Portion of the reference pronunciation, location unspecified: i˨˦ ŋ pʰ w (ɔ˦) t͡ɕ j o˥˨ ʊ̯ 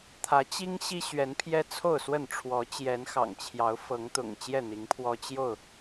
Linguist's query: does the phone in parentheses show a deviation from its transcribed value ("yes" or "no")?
no